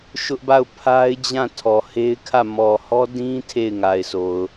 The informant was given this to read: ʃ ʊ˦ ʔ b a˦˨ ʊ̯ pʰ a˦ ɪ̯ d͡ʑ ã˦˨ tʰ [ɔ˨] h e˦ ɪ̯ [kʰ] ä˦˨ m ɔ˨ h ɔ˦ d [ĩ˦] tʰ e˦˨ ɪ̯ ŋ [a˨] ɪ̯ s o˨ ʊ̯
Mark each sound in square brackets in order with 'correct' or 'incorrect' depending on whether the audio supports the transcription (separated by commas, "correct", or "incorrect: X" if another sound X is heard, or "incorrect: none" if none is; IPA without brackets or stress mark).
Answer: correct, correct, correct, correct